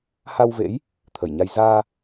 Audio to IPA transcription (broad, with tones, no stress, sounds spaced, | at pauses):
h a˧ w v ḛ˧˥ j | t̪ʰ ə˧˩ j ɲ a˧ j z aː˧